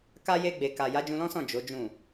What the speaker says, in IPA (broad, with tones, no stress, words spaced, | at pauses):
ka˧je˧ ɡ͡be˨ka˨ ja˨˦d͡ʒũ˧lɔ̃˦sɔ̃˦˨ d͡ʒo˨˦d͡ʒũ˦˨